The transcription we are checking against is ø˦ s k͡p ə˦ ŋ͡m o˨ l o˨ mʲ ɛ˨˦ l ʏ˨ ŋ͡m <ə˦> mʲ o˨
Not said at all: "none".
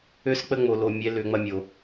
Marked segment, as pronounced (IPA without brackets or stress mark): ɐ˦